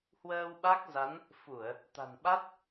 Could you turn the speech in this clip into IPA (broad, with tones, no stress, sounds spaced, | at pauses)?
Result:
h w əː˧ w ɓ a˦˥ k̚ z a˨˦ n | f u˧˩˨ ə̯ | t̪ a̤˨˩ n ɓ a˦˥ t̚